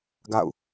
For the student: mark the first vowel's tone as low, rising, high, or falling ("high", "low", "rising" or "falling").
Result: falling